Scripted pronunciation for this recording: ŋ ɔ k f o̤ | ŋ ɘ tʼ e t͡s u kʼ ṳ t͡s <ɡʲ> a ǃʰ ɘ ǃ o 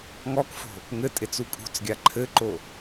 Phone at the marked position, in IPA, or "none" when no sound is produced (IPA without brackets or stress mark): ɡʲ